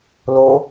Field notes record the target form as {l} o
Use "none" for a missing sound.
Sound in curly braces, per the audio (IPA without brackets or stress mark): l